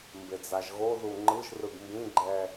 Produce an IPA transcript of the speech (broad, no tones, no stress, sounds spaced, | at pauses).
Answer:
m b e d͡z a ʒ ɣ o ð u ŋ͡ǃ ɯ ʒ r ɯ ɡ m b ĩ ɡ͡ǃ ɛ